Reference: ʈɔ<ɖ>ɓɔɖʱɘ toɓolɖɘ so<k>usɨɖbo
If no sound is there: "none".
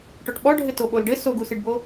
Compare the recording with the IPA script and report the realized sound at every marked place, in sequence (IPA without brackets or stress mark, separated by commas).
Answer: ʈ, ɡ